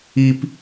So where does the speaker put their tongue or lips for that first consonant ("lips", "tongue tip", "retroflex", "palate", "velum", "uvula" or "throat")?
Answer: lips